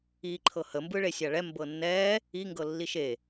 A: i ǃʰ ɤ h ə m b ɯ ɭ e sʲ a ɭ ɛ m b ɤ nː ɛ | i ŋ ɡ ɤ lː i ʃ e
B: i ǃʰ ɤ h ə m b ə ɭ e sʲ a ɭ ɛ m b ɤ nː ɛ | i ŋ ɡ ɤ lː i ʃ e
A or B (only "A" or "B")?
A